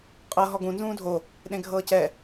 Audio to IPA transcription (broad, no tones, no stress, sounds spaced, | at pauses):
qʼ ɤ ɦ ɔ ɡ ũ n z ũː dʱ o | ɗ ẽ ɡʱ ɤː c ɛ